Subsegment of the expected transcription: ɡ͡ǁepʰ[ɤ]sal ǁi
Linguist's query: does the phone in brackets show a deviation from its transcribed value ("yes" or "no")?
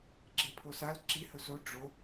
yes